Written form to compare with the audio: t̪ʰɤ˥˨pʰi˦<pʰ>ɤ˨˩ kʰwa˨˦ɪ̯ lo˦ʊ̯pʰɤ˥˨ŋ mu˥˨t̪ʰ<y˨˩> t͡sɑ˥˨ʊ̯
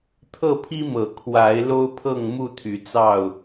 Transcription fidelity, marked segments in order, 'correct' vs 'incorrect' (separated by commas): incorrect, incorrect